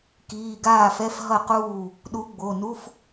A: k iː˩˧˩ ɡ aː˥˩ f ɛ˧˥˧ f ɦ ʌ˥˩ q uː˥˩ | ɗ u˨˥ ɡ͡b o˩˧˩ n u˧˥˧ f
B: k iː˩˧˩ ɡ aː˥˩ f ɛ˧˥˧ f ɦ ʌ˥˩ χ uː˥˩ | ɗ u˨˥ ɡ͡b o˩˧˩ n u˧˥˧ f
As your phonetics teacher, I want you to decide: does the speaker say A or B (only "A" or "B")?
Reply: A